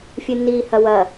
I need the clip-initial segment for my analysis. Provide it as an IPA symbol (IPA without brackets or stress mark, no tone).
fʲ